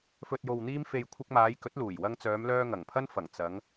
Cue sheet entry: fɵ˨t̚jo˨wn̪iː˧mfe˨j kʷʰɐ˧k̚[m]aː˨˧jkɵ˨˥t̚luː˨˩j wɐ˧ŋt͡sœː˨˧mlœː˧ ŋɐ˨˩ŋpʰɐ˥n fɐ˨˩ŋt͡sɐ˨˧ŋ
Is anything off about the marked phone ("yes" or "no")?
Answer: no